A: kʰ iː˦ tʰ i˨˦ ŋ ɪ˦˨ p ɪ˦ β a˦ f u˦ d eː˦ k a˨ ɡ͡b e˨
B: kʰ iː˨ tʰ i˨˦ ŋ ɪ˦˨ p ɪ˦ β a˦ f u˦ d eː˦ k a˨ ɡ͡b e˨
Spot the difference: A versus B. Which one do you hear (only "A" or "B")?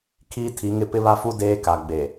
A